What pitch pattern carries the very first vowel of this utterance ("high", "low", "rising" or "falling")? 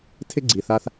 high